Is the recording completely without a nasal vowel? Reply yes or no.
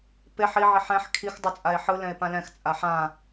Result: no